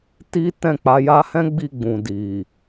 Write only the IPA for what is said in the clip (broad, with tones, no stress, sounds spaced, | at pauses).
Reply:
t i˦ t ɛ̃˦˨ k͡p a˧ j a˧ h ɛ̃˦ ɡ͡b i˦˨ ɡ͡b ũ˨ d i˨